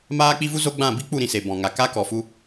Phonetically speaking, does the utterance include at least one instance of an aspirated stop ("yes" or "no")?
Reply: no